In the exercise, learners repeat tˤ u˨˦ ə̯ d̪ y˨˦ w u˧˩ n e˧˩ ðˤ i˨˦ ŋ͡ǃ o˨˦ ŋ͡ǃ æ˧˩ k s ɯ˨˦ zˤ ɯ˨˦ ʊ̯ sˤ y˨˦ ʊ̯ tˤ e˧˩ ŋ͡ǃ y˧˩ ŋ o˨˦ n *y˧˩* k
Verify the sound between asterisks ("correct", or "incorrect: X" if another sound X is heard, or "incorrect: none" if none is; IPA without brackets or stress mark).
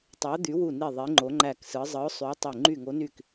correct